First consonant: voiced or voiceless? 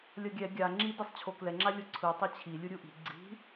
voiced